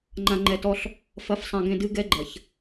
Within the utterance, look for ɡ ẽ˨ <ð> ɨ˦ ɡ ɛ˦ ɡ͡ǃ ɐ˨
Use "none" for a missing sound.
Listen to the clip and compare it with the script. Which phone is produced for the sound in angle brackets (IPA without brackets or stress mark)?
d